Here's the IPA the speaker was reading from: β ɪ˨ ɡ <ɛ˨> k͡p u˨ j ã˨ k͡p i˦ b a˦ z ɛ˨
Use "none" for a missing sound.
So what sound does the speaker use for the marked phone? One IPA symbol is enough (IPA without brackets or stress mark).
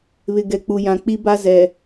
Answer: ɛ˨